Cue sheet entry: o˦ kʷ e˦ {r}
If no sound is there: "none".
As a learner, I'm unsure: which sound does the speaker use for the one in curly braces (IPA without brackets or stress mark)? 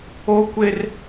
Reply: r